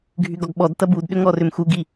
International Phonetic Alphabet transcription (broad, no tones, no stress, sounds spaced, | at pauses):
ɡʱ y ɡ ɔ ɡ ɓ ɔ d t ɐ b u d ɗ ʏ ŋ ɔ r ʏ m x u ɡ i